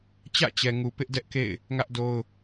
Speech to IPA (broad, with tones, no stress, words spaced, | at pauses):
t͡ɕä̰˦˨t͡ɕɛ˨ ŋu˨ pɪ˦ʔdɛ˦ʔkḛ˦˨ɪ̯ | ŋä˦ʔ do˦ʊ̯